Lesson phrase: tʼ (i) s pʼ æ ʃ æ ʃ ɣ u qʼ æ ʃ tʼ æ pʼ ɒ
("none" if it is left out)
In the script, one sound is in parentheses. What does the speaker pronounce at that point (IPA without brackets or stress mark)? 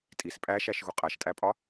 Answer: i